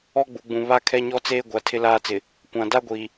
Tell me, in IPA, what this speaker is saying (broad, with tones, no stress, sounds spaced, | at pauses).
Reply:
ɔ˦ ɡ͡b u˨ ɡ͡b ũ˨ β a˦ kʰ ɛ˦ ɲ ɔ˦ t͡s eː˦ ɡʷ a˨ tʰ ɪ˦ l aː˦ t͡s ɪ˨ | kʷ ã˨ d a˦ ɡʷ iː˨